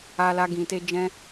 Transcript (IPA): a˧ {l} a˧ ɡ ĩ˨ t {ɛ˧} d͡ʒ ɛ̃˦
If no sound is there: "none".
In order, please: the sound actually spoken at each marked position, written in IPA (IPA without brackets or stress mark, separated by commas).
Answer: l, e˧